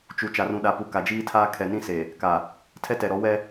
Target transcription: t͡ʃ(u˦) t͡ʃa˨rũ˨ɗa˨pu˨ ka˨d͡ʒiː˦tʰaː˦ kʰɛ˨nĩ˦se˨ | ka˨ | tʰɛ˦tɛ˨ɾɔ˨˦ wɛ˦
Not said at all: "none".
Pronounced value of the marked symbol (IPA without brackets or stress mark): u˨